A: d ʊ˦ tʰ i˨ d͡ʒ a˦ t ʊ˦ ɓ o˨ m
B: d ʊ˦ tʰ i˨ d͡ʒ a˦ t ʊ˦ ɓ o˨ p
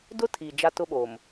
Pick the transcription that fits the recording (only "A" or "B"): A